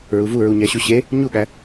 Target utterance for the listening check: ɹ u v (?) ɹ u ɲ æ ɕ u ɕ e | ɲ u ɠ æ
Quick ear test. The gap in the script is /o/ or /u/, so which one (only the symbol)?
u